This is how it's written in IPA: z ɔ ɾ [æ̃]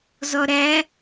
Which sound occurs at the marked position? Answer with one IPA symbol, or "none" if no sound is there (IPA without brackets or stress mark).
æ